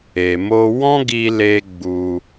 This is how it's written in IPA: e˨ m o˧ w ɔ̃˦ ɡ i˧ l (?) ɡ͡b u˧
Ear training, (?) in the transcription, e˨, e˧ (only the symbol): e˧